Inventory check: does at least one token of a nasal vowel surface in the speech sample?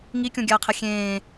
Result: yes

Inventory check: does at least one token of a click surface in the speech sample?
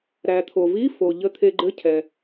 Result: yes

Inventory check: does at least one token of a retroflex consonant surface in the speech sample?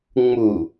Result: no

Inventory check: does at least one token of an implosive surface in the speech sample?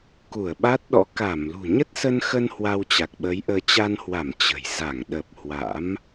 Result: yes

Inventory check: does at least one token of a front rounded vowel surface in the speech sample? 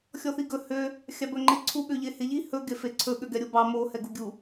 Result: yes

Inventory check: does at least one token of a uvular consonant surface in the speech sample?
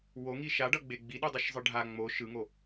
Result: no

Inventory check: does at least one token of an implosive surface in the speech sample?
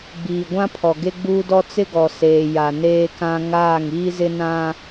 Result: no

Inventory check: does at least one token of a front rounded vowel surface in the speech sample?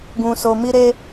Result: no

